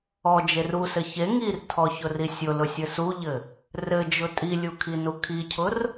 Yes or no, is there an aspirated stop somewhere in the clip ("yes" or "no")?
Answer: yes